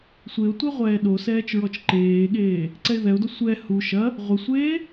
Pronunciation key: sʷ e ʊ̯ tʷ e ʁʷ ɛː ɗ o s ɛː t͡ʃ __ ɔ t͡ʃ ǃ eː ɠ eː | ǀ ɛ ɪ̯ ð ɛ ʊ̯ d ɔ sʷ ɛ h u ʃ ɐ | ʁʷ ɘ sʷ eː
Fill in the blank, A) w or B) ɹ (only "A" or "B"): B